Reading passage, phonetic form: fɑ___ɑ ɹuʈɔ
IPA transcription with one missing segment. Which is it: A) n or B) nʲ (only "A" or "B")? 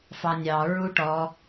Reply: B